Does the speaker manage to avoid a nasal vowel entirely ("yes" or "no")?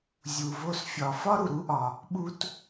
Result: yes